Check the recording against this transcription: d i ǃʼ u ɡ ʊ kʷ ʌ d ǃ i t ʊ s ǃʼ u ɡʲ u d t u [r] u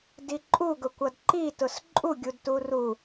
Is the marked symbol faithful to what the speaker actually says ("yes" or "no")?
yes